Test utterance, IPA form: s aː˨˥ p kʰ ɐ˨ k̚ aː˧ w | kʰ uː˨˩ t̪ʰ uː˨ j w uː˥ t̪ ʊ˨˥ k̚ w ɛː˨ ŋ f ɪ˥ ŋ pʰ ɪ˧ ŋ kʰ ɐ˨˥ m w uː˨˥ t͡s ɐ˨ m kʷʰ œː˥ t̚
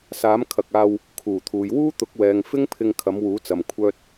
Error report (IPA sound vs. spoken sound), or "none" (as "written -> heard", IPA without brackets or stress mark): p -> m